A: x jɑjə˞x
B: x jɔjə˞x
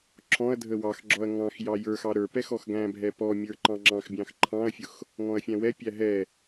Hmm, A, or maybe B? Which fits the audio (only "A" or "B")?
A